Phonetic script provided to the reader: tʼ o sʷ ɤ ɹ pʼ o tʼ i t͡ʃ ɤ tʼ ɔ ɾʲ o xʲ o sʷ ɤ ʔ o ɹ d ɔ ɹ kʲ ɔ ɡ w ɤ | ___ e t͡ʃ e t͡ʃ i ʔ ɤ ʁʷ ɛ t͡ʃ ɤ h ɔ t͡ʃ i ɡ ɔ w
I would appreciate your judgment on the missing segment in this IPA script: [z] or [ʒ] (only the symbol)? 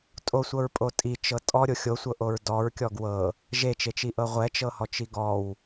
ʒ